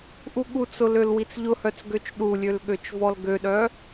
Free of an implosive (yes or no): no